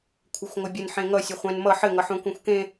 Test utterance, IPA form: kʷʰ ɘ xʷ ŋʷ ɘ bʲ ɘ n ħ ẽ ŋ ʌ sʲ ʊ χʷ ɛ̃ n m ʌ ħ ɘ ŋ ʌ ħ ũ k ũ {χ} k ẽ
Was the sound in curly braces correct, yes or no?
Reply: no